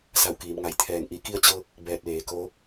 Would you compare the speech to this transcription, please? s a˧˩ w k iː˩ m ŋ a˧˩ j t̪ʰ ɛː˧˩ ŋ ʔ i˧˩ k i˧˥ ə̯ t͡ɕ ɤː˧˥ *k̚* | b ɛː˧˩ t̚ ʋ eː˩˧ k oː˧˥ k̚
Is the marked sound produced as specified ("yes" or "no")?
yes